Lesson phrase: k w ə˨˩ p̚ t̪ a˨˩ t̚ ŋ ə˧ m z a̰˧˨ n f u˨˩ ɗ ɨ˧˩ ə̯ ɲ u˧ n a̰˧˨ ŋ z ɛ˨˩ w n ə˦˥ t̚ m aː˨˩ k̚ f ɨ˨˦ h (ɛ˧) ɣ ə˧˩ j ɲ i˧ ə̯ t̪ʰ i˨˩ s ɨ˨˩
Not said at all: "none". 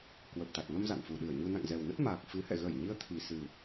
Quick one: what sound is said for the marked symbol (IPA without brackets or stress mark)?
ɛ̰˧˨